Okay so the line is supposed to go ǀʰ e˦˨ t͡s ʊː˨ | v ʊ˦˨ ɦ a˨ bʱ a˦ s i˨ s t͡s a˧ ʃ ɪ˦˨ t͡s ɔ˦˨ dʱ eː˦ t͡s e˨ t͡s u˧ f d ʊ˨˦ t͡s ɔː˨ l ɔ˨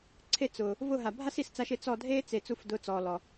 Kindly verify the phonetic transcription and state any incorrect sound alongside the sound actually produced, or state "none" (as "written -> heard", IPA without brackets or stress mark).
none